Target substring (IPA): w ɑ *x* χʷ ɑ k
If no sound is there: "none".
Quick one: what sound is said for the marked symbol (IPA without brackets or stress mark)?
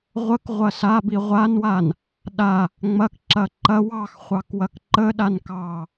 x